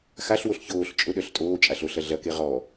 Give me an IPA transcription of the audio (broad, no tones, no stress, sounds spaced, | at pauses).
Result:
x a ɬ w o ɬ ç oː ɬ t͡ʃʼ ʊ ɗ œ ɬ tʼ oː t͡ʃʼ a ɬ o ɬ ɐ ɮ ɐ k e ʁ ɔ